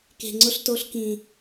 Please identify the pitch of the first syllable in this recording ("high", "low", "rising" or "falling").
low